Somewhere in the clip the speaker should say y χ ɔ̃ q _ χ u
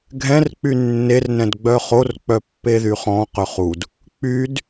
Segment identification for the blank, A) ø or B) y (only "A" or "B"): A